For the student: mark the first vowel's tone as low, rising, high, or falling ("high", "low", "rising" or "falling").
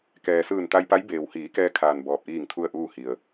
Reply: low